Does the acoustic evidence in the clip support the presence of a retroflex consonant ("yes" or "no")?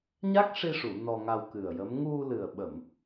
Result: yes